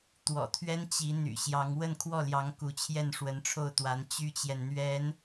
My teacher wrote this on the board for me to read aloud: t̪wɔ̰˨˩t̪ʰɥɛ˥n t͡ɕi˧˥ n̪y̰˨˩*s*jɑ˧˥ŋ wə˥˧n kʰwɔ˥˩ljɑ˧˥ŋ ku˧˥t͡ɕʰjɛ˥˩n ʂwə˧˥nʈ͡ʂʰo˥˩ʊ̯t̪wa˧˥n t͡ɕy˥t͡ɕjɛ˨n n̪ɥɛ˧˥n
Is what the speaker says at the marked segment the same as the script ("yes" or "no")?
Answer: no